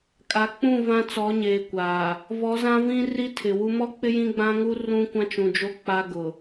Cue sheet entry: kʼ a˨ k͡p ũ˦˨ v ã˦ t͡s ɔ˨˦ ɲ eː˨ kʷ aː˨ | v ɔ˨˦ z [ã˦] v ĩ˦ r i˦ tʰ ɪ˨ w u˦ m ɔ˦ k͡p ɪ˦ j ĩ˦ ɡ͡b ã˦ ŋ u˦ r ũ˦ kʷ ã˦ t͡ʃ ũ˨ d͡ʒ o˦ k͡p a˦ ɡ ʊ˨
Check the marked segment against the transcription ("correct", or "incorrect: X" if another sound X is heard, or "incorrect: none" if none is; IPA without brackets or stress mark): correct